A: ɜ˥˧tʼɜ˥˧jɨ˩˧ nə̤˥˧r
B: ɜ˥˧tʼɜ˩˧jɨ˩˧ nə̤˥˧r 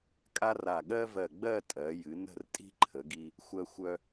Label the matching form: B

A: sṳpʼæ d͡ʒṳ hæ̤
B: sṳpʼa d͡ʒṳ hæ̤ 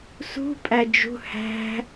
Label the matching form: A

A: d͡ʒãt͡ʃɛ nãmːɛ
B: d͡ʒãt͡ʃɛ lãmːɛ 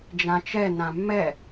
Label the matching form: A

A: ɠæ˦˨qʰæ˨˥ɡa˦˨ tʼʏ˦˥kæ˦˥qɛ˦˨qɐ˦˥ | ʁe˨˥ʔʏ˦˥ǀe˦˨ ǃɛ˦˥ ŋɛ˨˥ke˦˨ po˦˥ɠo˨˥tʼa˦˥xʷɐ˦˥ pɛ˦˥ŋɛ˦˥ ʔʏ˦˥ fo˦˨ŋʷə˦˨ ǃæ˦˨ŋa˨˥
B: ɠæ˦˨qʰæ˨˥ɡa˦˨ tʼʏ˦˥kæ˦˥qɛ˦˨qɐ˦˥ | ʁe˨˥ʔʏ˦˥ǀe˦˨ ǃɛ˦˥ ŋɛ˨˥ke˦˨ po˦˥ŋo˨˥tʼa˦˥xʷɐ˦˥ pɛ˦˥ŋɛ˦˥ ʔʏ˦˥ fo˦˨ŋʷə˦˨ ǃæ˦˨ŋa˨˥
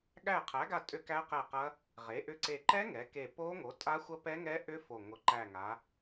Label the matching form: B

